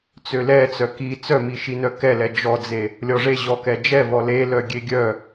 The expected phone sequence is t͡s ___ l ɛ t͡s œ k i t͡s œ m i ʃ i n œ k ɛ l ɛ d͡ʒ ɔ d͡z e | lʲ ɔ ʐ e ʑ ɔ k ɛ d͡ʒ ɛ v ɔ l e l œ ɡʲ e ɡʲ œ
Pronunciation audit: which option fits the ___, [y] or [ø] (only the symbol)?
ø